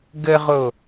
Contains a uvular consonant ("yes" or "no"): yes